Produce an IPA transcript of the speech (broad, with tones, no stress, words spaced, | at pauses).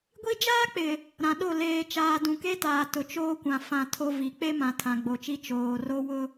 ɡʷi˦ d͡ʒaː˦k͡pɪ˨ | ɾã˨ɗo˦˨ leː˨t͡ʃaː˨ dũ˨ke˦taː˨ tʊ˨t͡ʃoː˦kʷã˨ fã˨ tʰo˦vi˨ k͡pe˦mã˨tʰã˨ ɡ͡bo˨t͡ʃi˦ t͡ʃoː˨ro˦wʊ˦